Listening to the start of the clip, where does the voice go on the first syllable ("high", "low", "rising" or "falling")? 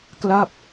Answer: falling